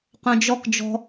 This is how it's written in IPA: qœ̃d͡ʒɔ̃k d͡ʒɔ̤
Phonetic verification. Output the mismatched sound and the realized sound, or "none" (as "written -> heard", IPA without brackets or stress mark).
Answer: ɔ̃ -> ɔ